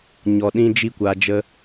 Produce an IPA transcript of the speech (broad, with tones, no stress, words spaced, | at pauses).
ɲɔ˨ɗĩ˧ d͡ʒi˦kʷaː˧d͡ʒə˦